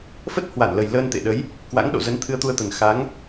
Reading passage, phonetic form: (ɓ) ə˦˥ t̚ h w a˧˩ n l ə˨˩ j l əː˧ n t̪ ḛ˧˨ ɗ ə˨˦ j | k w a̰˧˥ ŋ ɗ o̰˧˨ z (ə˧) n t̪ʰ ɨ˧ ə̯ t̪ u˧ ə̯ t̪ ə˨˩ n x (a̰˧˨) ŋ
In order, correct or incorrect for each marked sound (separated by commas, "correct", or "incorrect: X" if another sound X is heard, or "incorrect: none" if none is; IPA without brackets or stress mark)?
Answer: incorrect: f, incorrect: ə˨˦, incorrect: a˨˦